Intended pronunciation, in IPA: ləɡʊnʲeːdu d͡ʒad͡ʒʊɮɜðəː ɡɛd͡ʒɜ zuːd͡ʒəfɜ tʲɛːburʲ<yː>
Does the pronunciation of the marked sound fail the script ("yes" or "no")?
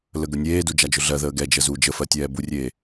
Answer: yes